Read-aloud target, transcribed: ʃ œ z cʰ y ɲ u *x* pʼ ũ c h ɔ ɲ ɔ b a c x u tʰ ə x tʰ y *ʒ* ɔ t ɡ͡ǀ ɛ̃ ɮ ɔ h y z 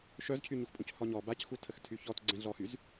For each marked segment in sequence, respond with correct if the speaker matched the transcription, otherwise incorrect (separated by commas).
correct, incorrect